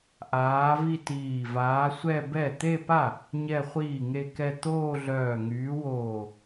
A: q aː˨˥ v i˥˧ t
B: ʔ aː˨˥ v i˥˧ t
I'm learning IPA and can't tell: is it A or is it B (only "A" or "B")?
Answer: B